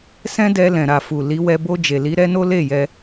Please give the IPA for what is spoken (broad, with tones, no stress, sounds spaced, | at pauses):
s ɛ̃˦ d ɛ˧ l ɛ̃˨ ɾ a˨ f u˨ l i˨˦ w ɛ˧ b o˧ d͡ʒ e˨ l i˨˦ ɾ ɛ˦ n o˦ l e˦˨ j ɛ˧